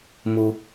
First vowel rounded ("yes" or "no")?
yes